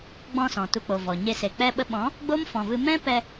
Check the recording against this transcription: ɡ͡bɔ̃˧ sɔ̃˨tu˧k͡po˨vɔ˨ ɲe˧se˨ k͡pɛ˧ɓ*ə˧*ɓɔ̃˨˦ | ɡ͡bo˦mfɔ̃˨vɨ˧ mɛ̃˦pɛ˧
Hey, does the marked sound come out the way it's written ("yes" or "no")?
yes